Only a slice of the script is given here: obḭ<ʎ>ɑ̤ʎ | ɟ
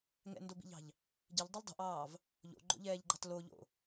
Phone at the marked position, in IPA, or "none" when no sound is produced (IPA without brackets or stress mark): ʎ